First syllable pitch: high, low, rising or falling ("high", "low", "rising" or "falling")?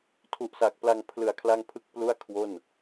low